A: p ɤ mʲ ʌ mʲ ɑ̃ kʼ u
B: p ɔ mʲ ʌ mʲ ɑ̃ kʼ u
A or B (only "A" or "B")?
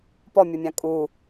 B